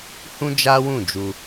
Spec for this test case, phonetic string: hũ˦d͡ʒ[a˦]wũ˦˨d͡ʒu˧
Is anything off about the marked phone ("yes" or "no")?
no